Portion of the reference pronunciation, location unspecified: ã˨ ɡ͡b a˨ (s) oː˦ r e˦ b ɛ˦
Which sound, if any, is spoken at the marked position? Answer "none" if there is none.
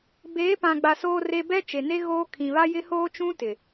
s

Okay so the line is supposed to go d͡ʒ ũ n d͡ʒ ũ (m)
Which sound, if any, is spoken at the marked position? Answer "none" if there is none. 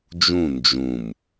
m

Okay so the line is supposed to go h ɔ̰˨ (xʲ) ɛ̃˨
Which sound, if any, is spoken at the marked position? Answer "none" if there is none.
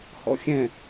xʲ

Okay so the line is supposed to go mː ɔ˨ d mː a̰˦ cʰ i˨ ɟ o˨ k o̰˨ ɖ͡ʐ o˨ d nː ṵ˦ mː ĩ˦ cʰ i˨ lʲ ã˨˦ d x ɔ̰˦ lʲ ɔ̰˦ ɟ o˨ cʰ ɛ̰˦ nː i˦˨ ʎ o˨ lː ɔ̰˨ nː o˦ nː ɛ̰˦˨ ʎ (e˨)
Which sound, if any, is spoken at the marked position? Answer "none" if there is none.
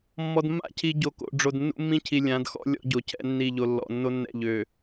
ø˨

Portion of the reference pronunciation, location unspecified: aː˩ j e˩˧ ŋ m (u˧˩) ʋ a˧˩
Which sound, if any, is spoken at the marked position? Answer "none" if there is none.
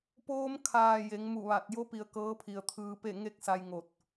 u˧˩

